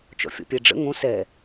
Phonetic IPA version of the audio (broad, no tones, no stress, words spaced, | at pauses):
t͡ʃɔ̰fʲɔ̰pʲɛɖ͡ʐə̰ ŋõ sɛ